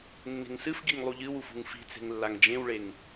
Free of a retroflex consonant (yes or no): no